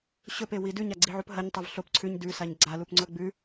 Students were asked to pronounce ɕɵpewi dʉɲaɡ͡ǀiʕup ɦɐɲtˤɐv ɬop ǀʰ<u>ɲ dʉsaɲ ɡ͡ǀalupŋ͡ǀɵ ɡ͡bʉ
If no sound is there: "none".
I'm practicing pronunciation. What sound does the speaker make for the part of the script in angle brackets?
ʉ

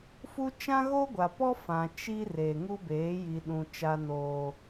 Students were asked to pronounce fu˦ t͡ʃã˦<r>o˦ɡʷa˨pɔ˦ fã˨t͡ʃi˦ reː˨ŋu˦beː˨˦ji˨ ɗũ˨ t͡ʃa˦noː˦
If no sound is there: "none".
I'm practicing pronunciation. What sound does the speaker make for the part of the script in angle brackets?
ɣ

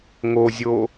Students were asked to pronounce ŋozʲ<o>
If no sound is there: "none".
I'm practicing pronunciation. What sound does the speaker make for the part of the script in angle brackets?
o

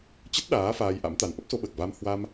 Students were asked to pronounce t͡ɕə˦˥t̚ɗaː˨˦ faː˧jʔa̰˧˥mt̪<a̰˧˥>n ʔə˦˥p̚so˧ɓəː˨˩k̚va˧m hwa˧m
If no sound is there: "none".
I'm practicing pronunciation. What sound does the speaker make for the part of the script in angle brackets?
a˨˦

